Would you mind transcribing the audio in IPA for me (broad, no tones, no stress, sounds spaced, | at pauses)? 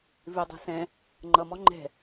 v ɪ dˤ ɛ̤ s ɛ̃ | ŋ͡ǃ ʌ m ɔ ŋ͡ǃ ɛ̤